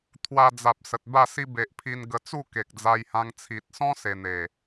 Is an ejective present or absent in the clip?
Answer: absent